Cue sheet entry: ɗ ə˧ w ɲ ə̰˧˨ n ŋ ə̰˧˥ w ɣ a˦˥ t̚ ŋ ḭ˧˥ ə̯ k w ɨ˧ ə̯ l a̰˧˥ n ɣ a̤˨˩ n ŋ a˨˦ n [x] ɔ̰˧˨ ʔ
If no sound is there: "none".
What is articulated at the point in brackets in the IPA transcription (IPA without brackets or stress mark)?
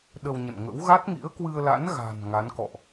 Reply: k